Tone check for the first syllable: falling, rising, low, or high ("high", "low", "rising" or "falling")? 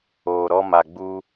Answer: low